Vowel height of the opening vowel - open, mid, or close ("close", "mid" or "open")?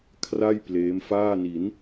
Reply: open